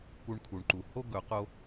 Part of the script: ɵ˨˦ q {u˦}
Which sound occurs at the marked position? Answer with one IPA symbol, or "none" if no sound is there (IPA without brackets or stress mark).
o˦